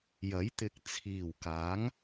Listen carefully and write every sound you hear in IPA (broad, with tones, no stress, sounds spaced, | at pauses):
j ɐ˨˥ j t̪ ɪ˨ k̚ t͡sʰ iː˨˩ w k aː˨˥ ŋ